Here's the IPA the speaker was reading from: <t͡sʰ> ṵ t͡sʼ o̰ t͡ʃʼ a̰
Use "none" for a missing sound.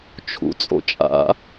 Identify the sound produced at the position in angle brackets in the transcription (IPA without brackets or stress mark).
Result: t͡ʃʰ